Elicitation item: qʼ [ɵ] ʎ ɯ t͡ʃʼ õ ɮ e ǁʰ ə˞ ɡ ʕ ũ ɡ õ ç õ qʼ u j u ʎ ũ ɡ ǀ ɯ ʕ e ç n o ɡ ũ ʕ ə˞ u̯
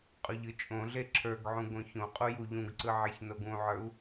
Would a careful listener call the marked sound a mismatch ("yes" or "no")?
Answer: no